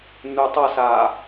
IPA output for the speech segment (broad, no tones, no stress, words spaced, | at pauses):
nutˤʌsaː